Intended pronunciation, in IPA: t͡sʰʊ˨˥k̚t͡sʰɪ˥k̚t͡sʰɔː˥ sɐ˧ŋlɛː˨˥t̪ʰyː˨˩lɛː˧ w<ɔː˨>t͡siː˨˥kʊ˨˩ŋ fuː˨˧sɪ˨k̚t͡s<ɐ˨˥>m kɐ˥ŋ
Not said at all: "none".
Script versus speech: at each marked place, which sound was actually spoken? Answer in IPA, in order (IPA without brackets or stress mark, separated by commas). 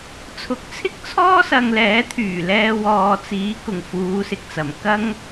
ɔː˨, ɐ˨˩